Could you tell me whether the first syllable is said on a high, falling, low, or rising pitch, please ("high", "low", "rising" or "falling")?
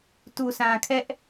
low